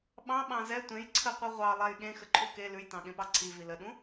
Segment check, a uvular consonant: present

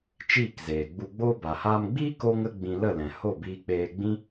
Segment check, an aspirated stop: absent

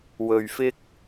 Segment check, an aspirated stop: absent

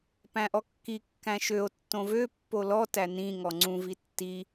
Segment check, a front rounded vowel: present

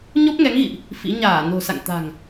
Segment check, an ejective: absent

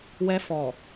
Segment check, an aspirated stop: absent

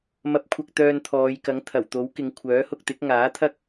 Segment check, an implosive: absent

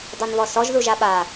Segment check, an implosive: present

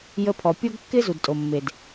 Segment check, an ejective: present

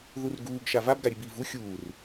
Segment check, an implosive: absent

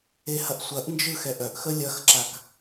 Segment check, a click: present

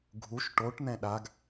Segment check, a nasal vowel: present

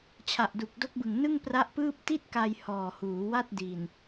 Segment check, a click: absent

